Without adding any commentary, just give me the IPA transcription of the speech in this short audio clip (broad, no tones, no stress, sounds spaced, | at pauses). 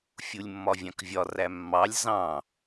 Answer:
fʲ u lʲ mː ɒ vʲ ɑ̃ k vʲ ɒ r æ mː ɑ lʲ z ɑ̃